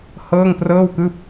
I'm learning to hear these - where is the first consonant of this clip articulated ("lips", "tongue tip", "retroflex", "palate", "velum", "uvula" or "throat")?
throat